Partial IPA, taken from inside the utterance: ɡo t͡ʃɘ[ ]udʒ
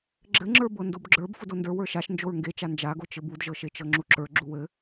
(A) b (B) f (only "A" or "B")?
A